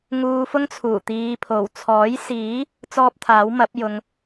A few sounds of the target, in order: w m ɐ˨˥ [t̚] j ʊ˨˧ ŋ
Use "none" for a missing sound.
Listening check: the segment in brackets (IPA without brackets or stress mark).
p̚